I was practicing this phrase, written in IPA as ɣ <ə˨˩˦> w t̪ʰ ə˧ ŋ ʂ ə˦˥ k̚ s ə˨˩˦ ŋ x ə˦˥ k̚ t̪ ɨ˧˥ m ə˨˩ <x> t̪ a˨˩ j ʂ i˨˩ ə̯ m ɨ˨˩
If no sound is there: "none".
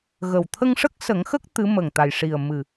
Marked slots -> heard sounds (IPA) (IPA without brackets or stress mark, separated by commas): ə˨˩, ŋ